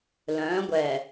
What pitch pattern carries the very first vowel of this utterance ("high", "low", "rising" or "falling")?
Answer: rising